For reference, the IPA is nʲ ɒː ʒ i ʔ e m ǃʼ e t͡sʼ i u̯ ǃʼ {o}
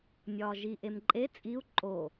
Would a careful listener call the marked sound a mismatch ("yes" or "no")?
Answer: no